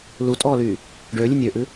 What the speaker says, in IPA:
l u tʼ ɔː l yː | ɖ ø lʲ ɨ nʲ ø ʔ ɨ

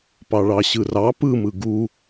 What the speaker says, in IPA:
p ɑ ɭ ɑ ɕ ɯ r ɑ p ɯ m ɯ ɡ u

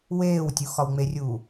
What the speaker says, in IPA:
w eː w tʲ u x ɒ w ŋ͡m e rʲ uː

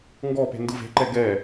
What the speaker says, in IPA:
ŋ ɡ ɔ p e̤ n d ɯ v e̤ ǃ ɛ ɡ ɛ

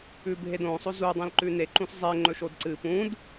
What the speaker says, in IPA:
ʉ bʱ e d õ sˤ o z u dˤ ẽ l ǃ ʉ n e ǃ ũ s zˤ e ŋ͡ǃ ɵ ʃ o d ǀ ɨ p ũ d

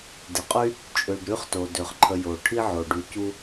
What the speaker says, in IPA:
d ɪ˩ qʼ y˥ | t͡ʃʼ ø˨ ɖ ɾ y˥ χ t o˩ d ø˩ χ ǃʰ ə˨ j o˩ ʈʰ i˥ ʕ o˩ ɖ y˨ c u˦

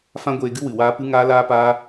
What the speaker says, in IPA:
f ã˦ ɡʷ eː˧ ɡ ɨ˦ w ɨ˨ w aː˦ p ɨ˦ ŋ aː˦ l aː˦ p aː˦

